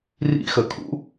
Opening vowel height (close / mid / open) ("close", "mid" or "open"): close